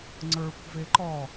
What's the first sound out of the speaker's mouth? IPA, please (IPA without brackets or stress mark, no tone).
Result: ŋ͡ǀ